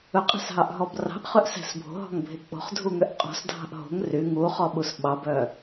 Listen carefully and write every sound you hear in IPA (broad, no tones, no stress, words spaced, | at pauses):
ɵqʼæ̤sɦɑʔɦɔb rɑ̤ʔχøʔsæ̤s bʱo̤ɦɔ̤ŋbʱe k͡po̤χdʱuŋøʔ qʼɔ̤sdʱɑ̤ʔ ɦo̤ŋ ry ŋuχɔɓus ɓɑbœ